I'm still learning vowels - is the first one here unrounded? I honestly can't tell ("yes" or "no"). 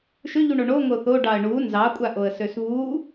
no